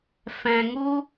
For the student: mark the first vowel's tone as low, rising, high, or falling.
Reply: low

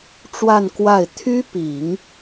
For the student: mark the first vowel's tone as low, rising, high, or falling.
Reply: falling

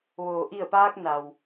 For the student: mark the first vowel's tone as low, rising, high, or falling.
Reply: low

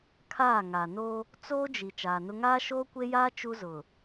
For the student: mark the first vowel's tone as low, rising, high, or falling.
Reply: falling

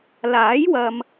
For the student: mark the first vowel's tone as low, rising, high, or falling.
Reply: rising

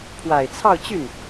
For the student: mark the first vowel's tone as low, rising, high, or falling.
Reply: low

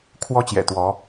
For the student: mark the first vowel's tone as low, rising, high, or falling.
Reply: high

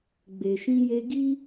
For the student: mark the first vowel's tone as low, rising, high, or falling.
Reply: low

